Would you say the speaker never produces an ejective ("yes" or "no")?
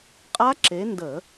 no